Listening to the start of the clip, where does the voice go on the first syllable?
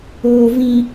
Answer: low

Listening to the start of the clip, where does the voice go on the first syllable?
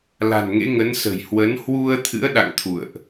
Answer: low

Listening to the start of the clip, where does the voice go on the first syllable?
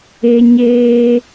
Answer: high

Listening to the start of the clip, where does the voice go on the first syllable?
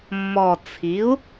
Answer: low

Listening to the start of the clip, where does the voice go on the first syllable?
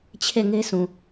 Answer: falling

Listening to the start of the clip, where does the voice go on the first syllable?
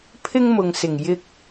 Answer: high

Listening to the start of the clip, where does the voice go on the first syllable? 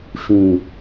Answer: low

